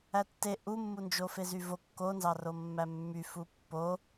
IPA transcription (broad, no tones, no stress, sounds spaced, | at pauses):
æ tː e ʔ u mː u n d͡ʒ o f e z y v o kː o n z ɑ r o mː æ mː y f u pː o